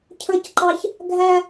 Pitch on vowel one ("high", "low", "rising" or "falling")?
high